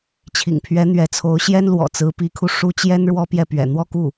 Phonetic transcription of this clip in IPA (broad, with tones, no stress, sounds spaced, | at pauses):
t͡ɕʰ ḭ˨˩ ŋ pʰ ɥ ɛ˧˥ n̪ ɥ ɛ˧˥ t͡sʰ o˧˥ ʊ̯ ɕ j ɛ˥ n l w ɔ̰˨˩ t͡s ɹ̩˧˥ p i˧˥ kʰ u˧ ʂ u˥ t͡ɕ j ɛ˥ n ɻ w ɔ˥ p j ɛ˥˩ p ɥ ɛ̰˨˩ n̪ w ɔ˥˧ k u˥˩